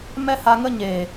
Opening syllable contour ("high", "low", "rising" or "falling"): high